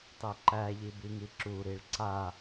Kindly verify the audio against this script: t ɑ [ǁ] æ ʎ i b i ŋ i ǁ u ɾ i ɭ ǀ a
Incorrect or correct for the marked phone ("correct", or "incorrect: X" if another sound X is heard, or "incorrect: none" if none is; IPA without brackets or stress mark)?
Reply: incorrect: ǃ